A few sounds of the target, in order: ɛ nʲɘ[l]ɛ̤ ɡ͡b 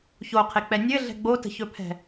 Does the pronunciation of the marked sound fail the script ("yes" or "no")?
yes